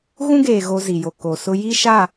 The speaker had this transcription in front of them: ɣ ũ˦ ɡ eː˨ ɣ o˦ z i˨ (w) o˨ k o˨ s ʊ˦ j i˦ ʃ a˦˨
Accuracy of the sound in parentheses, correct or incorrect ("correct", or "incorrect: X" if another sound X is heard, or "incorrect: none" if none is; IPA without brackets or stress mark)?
incorrect: j